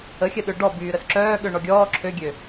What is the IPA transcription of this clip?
ə xʲ œ ɗ ø ɖ ɔ b yː ɾ ə s ǁ œː ɠ ø ɳ ɔ ɡʲ ɔː ǁʰ ø ɡʲ ø

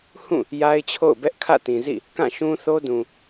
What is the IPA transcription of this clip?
h ũ˦˨ | j a˦ ɪ̯ t͡ɕʰ o̰˦˨ ʊ̯ b ɛ˦ ʔ kʰ ä̰˦˨ t ĩ˨ z ḭ˦˨ | k ã˦˨ ʃ ũ˦ θ o˦ d ũ˨

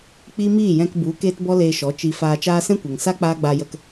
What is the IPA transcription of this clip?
k͡p i˦ m iː˦˨ j ɛ̃˧ k b u˨˦ k eː˦ t b ɔ˦ l eː˧ ʃ ɔ˨˦ t͡ʃ i˧ f aː˧ t͡ʃ aː˦ s ɛ̃˦ kʷ ɛ˨ ŋ s a˦ k͡p aː˦ ɡ͡b a˧ j ə˧ k

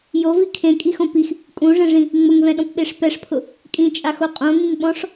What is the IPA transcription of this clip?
j o v i kʰ ẽ kʼ i x õ p i x | kʼ ũ ʐ ɛ̃ ʐ ĩ | ŋ͡m ʊ ŋ v ɛ̃ ɗ ɔ̃ p ɓ e ʂ p ɛ ʂ pʰ ʊ | kʼ ĩ t͡ʃʼ a x o qʼ õ ŋ ĩ ŋ ɓ ɔ̃ ʂ

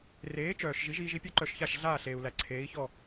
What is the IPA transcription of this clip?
r eː˩˥ t͡ʃ œː˩ ʃ ʒ i˩˥ ʒ iː˧ ʒ i˥ pʲ œ˥ ǃ œ˧ ʃ ç a˥˩ ʃ ɮ aː˥˩ ɬ eː˩ u̯ l æ˩ ǀʰ eː˩˥ i̯ ç ɔ˥˩

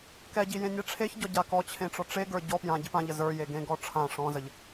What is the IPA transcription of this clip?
k ɛ ɟ i j ẽ nʲ ɛ ʈ͡ʂʰ e ç ɟ ɔ ɟ a k ɔ t͡ɕʰ ẽ ʈ͡ʂ ɔ ʈ͡ʂ e ɡ ə˞ ɟ ɔ p j ã ɟ i p ã ʎ ə z ə˞ j e ɡ ẽ ɡ ɔ ʈ͡ʂʰ ã ʂ ɔ̃ z ə ʎ

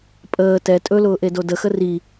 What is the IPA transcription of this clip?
pʼ əː t ɛ tʼ ɵ l ʊː ʔ e d o d ə x ə r i

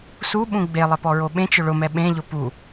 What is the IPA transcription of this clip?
s u ɓ ũ ɡ͡b e lˠ ɪ p ɔ ɹ o ɓ ẽ t͡ʃ ʊ ɭ ʊ m ɛ ɓ ẽ ʎ ʊ p u

